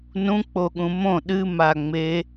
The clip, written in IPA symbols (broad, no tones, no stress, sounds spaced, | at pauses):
n ũ k͡p o ɠ ũ m õ ɗ ɨ m a ŋ͡m e